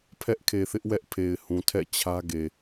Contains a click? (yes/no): no